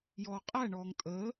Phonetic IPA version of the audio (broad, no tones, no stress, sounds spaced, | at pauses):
j ɔː qʼ æ ɳ ɔː ŋ tʼ əː